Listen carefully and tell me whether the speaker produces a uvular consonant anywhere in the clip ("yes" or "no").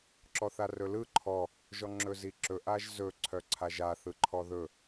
no